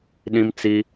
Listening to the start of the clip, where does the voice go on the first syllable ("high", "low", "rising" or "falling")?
high